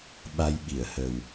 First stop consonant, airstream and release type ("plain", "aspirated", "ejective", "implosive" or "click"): implosive